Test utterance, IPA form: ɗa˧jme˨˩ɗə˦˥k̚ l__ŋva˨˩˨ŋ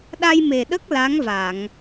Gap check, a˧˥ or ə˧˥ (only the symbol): a˧˥